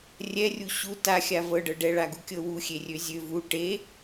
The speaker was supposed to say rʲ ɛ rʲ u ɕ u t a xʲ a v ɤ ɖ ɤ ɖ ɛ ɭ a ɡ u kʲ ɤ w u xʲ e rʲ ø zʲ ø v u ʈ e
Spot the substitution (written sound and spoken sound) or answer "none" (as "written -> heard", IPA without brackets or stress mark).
none